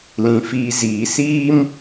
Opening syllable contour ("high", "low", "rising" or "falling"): low